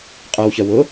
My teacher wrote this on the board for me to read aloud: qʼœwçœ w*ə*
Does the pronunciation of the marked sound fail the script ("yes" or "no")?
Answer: yes